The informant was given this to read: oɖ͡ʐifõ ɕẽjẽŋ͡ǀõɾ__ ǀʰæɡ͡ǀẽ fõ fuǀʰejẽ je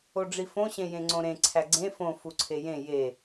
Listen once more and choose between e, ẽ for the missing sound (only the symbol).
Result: ẽ